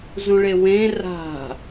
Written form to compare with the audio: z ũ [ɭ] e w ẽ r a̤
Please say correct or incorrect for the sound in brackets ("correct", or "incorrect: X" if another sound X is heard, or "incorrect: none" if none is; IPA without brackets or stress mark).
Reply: correct